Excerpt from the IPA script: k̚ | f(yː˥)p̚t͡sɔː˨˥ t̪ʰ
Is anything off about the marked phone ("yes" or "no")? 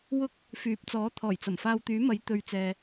yes